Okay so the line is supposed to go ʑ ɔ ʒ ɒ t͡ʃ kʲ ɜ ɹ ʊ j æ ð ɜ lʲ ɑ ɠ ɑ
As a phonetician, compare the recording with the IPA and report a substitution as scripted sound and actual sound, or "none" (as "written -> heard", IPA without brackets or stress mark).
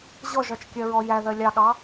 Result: ʊ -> ɔ